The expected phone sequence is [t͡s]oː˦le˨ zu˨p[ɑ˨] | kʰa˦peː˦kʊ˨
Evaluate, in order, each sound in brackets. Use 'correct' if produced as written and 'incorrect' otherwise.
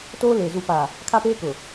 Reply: incorrect: t, incorrect: a˨

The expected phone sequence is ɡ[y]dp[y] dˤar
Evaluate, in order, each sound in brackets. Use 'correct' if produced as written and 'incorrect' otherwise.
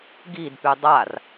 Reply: incorrect: i, correct

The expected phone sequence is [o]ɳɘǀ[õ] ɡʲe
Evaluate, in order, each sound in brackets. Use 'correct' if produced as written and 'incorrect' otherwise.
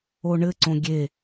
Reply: correct, correct

